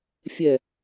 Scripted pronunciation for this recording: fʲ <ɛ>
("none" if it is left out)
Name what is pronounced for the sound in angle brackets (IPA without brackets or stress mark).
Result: ɛ